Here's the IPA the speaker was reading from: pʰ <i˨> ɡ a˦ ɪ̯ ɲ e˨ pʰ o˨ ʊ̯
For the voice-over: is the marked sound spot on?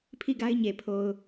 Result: no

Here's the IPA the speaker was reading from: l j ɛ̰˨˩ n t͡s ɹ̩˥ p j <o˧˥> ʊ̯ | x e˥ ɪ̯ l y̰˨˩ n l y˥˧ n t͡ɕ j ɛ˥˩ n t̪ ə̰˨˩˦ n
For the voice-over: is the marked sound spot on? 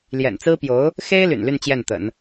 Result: yes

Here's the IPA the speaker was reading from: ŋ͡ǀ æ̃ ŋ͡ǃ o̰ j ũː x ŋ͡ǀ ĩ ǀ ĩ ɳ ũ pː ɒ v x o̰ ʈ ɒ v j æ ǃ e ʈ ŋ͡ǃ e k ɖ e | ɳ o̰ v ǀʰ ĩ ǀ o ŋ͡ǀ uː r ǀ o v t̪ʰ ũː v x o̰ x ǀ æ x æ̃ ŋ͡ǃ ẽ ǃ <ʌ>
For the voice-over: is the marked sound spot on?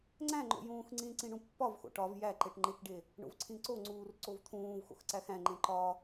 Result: no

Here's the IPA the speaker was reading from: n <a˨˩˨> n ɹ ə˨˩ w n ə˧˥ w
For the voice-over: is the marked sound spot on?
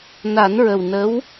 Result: no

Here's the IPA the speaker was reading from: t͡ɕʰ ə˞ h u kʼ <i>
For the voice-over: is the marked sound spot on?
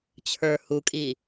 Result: yes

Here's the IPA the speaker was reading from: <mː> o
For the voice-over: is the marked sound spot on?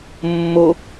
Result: yes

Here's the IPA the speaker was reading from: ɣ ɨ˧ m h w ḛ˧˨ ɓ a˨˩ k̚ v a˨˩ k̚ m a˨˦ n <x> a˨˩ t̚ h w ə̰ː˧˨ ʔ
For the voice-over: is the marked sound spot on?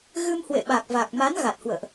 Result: no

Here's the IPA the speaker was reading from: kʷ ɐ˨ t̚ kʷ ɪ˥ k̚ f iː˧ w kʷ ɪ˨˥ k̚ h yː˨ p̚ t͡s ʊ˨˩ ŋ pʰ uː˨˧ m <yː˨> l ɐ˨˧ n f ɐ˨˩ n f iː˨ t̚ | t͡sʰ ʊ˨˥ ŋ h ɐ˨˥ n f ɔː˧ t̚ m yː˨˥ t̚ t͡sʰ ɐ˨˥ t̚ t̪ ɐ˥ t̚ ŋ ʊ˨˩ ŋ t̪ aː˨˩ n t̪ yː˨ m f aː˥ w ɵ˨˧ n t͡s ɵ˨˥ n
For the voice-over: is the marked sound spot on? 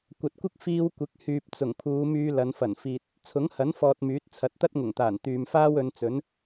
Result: no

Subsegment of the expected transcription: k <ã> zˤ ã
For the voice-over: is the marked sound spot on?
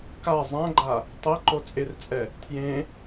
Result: no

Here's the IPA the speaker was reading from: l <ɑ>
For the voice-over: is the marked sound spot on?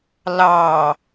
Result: yes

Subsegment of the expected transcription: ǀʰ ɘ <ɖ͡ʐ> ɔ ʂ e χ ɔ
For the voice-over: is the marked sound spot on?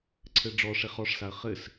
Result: yes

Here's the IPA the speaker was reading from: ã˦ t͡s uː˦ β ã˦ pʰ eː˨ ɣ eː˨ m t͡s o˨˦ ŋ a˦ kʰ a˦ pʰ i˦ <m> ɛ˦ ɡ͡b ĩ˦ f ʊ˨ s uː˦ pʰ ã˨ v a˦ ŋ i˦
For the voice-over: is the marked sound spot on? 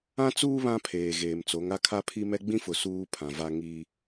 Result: yes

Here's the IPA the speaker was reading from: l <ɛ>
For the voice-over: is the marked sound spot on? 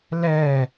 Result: yes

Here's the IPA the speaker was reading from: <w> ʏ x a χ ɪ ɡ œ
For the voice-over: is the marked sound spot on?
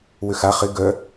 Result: yes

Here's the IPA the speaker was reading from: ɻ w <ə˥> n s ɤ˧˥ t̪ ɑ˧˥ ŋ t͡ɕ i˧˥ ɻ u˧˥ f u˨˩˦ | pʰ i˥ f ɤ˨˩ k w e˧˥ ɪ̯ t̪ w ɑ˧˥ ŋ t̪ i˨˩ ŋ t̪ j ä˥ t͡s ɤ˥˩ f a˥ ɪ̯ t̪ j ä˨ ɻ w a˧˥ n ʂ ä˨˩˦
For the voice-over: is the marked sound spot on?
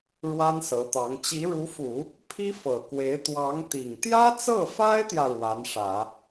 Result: no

